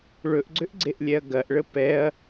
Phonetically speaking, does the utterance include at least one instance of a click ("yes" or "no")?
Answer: yes